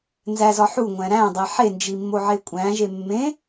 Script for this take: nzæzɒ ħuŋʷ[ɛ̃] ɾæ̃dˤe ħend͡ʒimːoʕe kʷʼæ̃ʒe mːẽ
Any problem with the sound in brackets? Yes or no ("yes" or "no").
yes